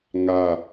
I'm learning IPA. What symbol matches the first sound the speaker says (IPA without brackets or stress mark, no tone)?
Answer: ŋ